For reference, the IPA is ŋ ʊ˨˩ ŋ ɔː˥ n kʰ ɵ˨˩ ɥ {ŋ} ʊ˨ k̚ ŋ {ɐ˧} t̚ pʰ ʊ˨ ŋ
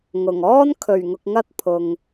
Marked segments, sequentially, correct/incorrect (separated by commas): correct, correct